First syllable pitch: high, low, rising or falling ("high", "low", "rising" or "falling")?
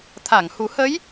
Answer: low